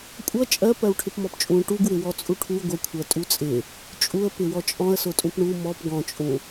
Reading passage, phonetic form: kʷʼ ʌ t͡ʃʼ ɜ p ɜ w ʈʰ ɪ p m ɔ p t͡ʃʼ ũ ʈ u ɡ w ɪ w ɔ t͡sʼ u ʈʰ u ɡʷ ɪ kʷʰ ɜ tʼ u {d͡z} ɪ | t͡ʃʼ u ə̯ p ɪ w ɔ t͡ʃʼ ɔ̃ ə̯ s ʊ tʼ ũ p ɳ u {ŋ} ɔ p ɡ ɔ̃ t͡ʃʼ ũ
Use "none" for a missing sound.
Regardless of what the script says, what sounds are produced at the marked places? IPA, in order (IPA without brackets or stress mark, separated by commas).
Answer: t͡sʼ, m